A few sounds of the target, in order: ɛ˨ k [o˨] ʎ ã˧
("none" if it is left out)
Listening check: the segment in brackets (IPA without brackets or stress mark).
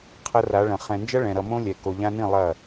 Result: o˨